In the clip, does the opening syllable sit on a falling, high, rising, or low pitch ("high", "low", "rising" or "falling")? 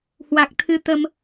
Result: low